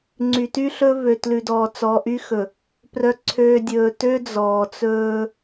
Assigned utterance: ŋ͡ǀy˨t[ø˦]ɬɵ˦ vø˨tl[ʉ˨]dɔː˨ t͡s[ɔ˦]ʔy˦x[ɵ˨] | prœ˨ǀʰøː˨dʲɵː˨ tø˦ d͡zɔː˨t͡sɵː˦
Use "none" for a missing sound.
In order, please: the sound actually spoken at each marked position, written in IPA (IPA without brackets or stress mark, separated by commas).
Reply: y˦, ʉ˨, ɔ˨, ɵ˨